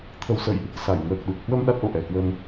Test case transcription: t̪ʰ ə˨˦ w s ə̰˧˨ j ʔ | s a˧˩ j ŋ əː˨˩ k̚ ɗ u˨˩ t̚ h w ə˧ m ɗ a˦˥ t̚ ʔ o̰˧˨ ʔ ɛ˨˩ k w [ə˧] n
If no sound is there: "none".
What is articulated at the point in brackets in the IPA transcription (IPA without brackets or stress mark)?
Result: ə˧